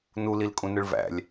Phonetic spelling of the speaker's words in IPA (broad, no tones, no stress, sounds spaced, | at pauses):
n u l i l kʼ ũ n ɯ ɭ v æ̰ lʲ